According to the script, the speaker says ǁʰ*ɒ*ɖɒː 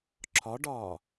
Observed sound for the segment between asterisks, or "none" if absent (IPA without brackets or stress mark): ɒ